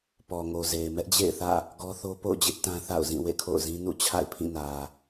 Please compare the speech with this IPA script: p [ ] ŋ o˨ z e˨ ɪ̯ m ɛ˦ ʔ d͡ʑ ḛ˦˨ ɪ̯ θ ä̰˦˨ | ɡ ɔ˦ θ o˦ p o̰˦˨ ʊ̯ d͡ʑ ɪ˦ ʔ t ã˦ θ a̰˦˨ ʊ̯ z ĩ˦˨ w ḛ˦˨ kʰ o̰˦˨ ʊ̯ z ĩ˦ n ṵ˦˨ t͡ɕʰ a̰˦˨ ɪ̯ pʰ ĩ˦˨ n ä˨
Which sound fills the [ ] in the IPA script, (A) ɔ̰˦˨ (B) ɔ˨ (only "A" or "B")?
B